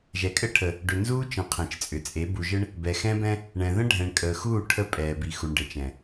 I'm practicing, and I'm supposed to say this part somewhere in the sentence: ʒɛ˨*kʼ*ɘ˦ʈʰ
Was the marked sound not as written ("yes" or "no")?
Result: no